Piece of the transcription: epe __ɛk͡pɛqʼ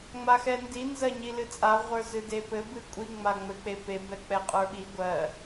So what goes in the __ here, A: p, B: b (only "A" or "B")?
B